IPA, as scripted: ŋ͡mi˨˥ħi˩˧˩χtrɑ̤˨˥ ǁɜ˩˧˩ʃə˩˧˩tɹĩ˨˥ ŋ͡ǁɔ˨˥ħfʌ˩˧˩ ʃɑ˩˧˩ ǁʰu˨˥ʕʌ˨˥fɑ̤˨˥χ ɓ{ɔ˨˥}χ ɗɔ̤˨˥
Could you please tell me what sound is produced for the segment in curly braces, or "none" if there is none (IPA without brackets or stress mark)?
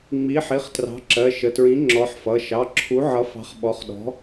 ɔ˨˥